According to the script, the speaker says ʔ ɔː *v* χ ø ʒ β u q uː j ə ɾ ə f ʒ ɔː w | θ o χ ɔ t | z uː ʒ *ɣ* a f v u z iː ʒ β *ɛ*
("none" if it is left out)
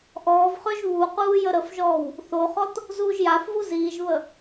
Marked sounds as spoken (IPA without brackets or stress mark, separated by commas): v, j, ə